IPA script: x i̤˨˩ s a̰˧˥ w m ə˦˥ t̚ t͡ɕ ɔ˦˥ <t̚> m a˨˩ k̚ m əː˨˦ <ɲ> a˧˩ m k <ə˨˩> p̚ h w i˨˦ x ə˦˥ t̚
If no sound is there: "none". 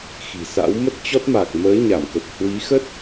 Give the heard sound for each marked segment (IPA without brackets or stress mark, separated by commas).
t̚, ɲ, ə˨˩